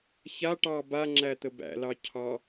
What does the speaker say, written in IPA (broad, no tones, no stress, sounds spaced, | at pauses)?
ç a ʈ ɑ b a ŋ͡ǁ æ t̪ ə b æ̰ l ɑ cʰ ɑ